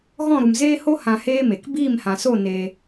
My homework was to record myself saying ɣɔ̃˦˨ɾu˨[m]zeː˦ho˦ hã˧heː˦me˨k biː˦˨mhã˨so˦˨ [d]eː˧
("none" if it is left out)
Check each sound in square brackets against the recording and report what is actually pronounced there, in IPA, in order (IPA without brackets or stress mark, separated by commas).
m, n